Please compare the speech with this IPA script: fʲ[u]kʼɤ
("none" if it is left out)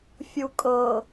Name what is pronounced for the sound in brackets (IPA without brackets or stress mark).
u